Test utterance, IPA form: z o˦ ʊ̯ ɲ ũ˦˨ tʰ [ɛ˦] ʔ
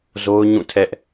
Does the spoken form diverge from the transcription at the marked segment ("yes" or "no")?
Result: no